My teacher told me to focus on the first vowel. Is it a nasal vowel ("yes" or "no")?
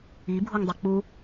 no